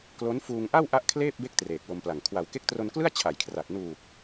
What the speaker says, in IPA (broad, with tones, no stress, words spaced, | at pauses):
klo˦˥nfuː˧ŋʔa˥˩w ʔa˦˥ʔ kʰleː˥˩p̚be˦˥k̚ treː˨˩k̚wo˧mpla˨˩ŋ kʰwa˩˦wke˦˥k̚tro˧nklɯ˥˩a̯ t͡ɕʰa˨˩jkʰra˨˩t̚ nuː˨˩k̚